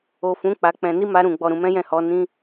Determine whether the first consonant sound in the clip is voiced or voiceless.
voiceless